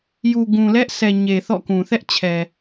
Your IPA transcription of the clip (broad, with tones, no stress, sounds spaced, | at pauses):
j u˨ ɡ ũ˨ l ɛ˦ ʔ sʰ ɛ˨ ɲ e˨ θ ɔ̰˦˨ k ũ˨ θ ɛ˦ ʔ t͡ɕʰ ɛ˨